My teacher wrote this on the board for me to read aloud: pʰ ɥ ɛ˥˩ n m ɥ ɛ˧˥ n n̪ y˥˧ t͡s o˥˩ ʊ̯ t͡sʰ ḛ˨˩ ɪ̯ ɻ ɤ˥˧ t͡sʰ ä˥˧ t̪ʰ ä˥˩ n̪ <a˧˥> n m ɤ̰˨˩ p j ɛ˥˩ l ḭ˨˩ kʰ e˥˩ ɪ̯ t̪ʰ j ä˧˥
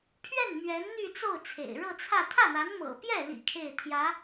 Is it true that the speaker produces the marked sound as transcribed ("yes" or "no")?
yes